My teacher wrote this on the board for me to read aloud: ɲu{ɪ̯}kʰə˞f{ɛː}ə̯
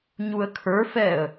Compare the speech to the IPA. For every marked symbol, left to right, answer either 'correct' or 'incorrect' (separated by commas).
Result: incorrect, correct